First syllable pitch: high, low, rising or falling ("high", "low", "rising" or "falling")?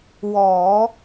low